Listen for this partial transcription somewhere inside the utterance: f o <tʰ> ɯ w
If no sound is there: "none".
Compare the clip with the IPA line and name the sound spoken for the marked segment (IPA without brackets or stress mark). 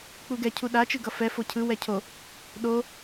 cʰ